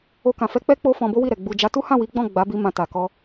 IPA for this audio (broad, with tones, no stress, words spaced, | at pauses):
o˧kã˨fɛ˧ k͡pɛ˦ k͡po˦fɔ̃˧ bo˦wi˦˨ɾɛ˨ ɡ͡bu˨ d͡ʒa˨˦tu˦hã˦˨wi˨˦ ɡ͡bɔ̃˦˨ɡ͡ba˨˦bi˧ mã˧ta˨kɔ˧